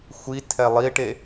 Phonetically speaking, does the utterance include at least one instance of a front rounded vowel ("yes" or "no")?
no